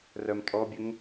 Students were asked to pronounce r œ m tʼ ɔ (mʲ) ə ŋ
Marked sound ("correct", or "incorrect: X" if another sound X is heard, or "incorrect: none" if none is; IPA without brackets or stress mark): incorrect: bʲ